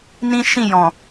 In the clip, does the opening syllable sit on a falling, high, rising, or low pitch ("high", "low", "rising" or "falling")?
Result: high